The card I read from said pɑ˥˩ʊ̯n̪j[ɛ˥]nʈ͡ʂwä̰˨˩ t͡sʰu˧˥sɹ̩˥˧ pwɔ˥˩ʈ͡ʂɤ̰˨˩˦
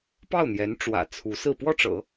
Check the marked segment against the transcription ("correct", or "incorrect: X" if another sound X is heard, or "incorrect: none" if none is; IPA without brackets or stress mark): incorrect: ɛ˧˥